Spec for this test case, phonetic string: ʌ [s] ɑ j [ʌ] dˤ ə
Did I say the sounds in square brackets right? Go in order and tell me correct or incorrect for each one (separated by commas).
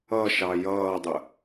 incorrect, incorrect